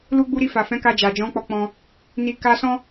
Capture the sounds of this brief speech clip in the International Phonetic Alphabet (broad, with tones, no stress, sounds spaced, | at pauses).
l u˧ ɡ͡b u˧ ɾ i˧ f a˨ f ɛ̃˨˦ k a˧ d͡ʒ a˨ d͡ʒ ɔ̃˨˦ k͡p ɔ˧ k͡p ɔ̃˧ | n i˨ k a˧ s ɔ̃˦